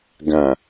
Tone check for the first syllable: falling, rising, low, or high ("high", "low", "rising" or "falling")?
low